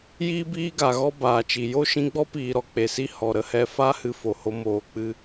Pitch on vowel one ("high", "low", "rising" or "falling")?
high